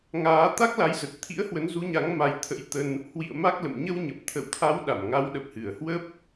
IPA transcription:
ŋ aː˨˦ t̪ a˦˥ k̚ l a˨˦ j z ə˨˩ t̚ t̪ʰ ḭ˧˥ ə̯ h w ə˨˦ n z u˨˦ ɲ a˨˦ ŋ m a˨˦ j t̪ʰ ə̰˧˥ j t̪ ə˧ n | h w ḭ˧˨ ə̯ m a˦˥ k̚ l ə̰˧˨ m ɲ ə˧ w ɲ ə˨˩ p̚ t̪ʰ ə̰˧˨ w t̪ʰ a˨˦ w ɗ a˧˩ m ŋ a˨˦ w ɗ ə˨˩ p̚ h ɨ˧˩ ə̯ h w ə˦˥ p̚

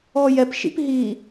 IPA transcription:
ɔ j ɛ p ʃ ḭ p ɦ i

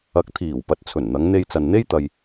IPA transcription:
ɐ˨˥ k̚ t̪ʰ iː˨˩ w p ɐ˨˥ t̚ t͡sʰ ɵ˨˩ n n̪ ɐ˨˧ ŋ n̪ e˧ j t͡s ɐ˨ n n̪ e˥ j t̪ ɐ˧ j

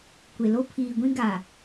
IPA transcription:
kʷ e˨ l o˦ pʰ iː˨ ɡʷ ĩ˦ ɡ a˨

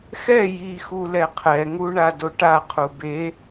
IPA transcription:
x ɛ j i x u l ɛ qʰ ɛ ŋ u ɳ a d o ʈ a qʰ u b e

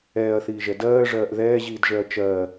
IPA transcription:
ɛː ɐ̯ θ iː ʒ ɛ d ɜː ʐ ɜː ʔ ð ɛː ʑ iː d ʒ ɛ ɐ̯ t͡ʃ ɜː

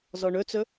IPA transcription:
z ɔ ɳ ɵ t͡s ɵ

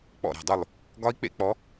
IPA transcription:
k͡p ɔ̰˧˩ ɾ a̤˧˩ dˤ u˧˩ lˠ | ɡ ɒ˦˥ i̯ k͡p ḛ˦˥ k͡p ɔ˨˦

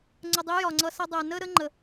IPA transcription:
ŋ͡ǀ ə˨ dˤ i˨˦ j ɒ˨ ŋ͡ǀ ʌ˧ s ʌ˧ dˤ ɛ˨ n ə˦ ɾ ə˦ ŋ͡ǃ ə˨

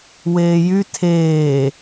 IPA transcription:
w eː j y tʰ eː

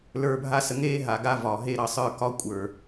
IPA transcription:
l ə˞˧ bʱ a˦ s ə˧ ŋ eː˦ ɦ a˨ ɡ a˧ v ɒː˨ ɦ e˦˨ ɾ ɑ˧ sˤ ə˞˦˨ k ɒ˦ kʷʼ ə˞˨

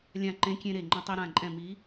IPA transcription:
lʲ ã˧˩ ǃ ẽ˨˥ kʲ ẽ˧ ɾ e˧˩ ŋ͡ǃ ɐ̃˧ tˤ i˧ ɾ ã˧˩ ǃʼ ɛ̃˧˩ m i˨˥

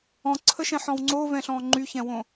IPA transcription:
ɔ̃ ǀʰ ə ʃ ɛ̃ ħ ɔ̃ w ŋ͡ǀ o v ɛ̃ ɬ ɔ̃ ŋ͡ǃ y ç ɛ̃ w õ

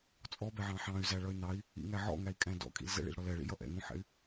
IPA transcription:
t͡sʼ ɔ b ɛ ʕ ɑ̃ ħ ɑ̃ y̯ z æ ɭ ʌ y̯ n ɑ i̯ | ḭ ŋ æ ʕ ɔ̰ ŋ æ i̯ kʼ æ̃ d ɔ̰ kʼ ḭ l z ɛ̰ ɭ ḭ l ɽ ɔ l ɛ ɭ ḭ j ʌ ʔ ɛ̰ ŋ ũ ħ ɛ̰ y̯

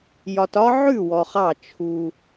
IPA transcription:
j ɒ˧ t ɒ˥ ʕ ʉ˥˩ w ɔ˧ χ ɑ˥˩ t͡ʃʰ u˧

